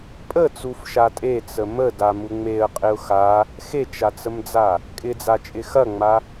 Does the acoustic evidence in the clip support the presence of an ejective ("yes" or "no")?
yes